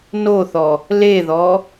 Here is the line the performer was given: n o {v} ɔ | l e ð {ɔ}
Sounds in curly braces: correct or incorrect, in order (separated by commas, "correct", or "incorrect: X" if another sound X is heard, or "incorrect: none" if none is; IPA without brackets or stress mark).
incorrect: θ, correct